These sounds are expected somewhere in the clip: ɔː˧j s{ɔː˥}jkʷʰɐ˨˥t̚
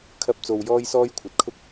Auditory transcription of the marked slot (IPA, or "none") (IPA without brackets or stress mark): ɔː˥